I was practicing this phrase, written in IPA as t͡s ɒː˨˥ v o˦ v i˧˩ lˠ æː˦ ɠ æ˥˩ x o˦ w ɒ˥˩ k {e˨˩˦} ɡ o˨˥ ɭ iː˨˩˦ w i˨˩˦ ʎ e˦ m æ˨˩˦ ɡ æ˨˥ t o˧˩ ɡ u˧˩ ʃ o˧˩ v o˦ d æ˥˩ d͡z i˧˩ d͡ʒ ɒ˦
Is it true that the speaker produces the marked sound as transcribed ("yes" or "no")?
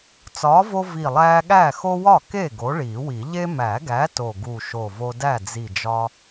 no